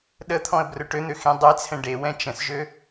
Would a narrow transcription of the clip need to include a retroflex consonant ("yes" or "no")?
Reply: yes